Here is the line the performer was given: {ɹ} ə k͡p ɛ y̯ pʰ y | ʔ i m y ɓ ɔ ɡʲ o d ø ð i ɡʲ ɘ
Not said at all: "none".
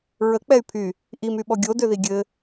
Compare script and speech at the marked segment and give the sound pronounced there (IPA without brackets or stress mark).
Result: ɹ